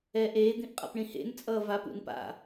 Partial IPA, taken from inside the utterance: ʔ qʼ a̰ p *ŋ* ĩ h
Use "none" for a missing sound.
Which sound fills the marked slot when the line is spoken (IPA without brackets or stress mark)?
ɳ